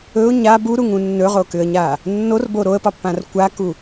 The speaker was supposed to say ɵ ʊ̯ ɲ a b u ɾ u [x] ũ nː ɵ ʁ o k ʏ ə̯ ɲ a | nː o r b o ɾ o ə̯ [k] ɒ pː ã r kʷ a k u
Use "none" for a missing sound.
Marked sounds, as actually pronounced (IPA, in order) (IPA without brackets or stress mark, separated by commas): ŋ, p